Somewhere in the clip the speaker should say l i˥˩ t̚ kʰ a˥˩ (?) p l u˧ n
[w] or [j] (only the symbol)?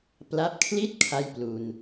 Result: j